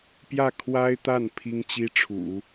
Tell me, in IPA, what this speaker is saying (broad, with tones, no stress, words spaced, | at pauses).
pjä˥˩ kʰwa˥ɪ̯t̪a˥˩n pʰi˥ŋ t͡ɕi˥ʈ͡ʂʰṵ˨˩˦